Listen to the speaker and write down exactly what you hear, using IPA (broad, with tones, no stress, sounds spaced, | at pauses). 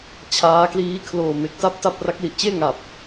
t͡ɕʰ aː˦˥ k l iː˦˥ kʰ l oː˨˩ m e˨˩ k̚ t a˥˩ p̚ t a˥˩ p̚ r a˦˥ k̚ l i˨˩ ʔ t͡ɕ eː˥˩ ŋ a˨˩ p̚